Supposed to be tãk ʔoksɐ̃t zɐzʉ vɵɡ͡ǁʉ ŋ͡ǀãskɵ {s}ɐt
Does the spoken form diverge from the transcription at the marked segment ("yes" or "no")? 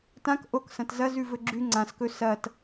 no